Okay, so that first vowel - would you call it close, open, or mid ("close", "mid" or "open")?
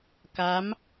open